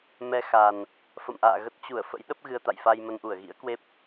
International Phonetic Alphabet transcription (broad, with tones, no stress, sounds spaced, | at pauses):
m ɛ˧ x a˨˩ n | f ə̰˧˨ m ʔ a̰ː˧˨ ɣ ə˦˥ t̚ t͡ɕ u˧˩ ə̯ f ə̰˧˥ j ɗ ə˦˥ p̚ ɣ ɨ˧ ə̯ t̪ a̰˧˨ j f a˧ j m ə˧ n ʔ u˧˩ ə̯ ɣ ḭ˧˥ ə̯ k w e˦˥ p̚